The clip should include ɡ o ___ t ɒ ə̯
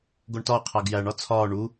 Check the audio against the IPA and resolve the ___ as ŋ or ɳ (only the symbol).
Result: ɳ